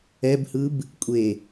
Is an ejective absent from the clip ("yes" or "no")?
no